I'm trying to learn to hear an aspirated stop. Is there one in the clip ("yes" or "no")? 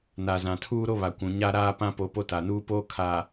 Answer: yes